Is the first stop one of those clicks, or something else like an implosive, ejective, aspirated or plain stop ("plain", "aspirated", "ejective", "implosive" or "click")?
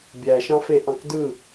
plain